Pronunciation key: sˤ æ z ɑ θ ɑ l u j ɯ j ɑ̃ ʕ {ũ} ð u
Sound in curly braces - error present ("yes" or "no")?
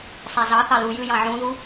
no